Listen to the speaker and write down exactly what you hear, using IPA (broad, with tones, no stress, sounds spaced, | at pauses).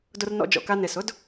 d ʊ˧ r n ɔ̰˧ d͡ʒ ɔ̰˩ k a˧ n e˩ s ʊ˥ d